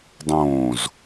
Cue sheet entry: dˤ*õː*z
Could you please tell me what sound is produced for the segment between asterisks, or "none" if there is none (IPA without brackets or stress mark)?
õː